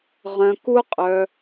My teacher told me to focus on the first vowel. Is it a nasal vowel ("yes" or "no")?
yes